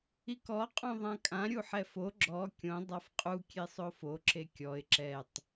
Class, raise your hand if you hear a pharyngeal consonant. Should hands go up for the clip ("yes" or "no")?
yes